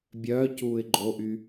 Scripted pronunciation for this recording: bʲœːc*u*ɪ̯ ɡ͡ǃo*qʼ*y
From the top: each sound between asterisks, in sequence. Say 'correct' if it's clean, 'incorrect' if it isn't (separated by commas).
incorrect, incorrect